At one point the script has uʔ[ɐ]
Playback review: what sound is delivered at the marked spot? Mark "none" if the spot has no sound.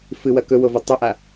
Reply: a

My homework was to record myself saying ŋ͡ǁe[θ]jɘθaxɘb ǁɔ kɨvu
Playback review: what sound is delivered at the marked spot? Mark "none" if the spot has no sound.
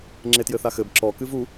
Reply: t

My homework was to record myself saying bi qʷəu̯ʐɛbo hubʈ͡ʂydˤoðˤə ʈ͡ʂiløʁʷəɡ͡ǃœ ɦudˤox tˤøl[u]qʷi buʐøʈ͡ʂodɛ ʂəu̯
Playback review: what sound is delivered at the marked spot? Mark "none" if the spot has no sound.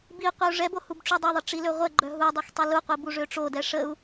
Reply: u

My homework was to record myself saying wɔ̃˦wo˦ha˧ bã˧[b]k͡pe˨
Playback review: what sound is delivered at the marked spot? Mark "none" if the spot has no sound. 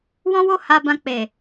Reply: none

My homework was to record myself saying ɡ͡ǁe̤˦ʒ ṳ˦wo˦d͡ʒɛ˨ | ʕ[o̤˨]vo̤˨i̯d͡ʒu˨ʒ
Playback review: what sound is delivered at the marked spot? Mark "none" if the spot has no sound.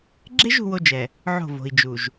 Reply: o̤˦˨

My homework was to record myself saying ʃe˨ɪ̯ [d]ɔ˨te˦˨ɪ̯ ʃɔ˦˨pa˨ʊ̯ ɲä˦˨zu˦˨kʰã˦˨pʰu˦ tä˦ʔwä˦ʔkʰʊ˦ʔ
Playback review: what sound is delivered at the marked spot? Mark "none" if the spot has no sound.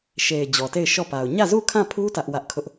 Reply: d͡ʑ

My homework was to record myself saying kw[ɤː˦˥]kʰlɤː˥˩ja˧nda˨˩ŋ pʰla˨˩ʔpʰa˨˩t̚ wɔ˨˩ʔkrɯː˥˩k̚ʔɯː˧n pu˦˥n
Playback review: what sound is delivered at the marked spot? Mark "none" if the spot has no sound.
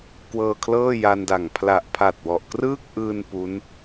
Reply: ɤː˧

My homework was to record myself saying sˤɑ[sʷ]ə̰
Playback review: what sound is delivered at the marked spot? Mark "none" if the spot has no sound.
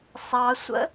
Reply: sʷ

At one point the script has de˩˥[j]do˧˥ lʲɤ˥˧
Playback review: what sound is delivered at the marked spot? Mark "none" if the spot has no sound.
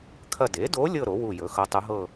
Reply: none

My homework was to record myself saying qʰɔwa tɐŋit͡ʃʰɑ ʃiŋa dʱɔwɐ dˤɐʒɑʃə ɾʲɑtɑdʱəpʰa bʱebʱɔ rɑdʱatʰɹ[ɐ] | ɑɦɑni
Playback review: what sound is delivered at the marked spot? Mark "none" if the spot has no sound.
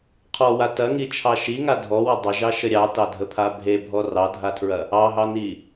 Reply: ɐ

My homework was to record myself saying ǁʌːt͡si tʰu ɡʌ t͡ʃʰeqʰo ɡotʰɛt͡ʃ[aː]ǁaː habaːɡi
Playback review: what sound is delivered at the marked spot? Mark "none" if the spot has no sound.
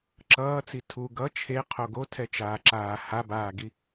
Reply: aː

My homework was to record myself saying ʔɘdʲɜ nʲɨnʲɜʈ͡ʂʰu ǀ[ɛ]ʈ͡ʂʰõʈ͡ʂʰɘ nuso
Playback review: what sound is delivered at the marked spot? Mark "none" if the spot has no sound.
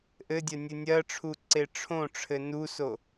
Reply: e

